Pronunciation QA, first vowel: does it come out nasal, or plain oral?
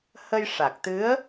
oral